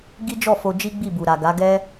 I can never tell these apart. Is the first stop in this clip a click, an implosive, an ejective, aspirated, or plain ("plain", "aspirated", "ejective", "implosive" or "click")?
plain